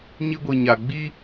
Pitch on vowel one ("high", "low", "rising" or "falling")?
high